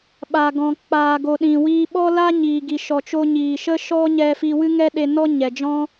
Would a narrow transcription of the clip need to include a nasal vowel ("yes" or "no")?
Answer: yes